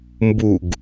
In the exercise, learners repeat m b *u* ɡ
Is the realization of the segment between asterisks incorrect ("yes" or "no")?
no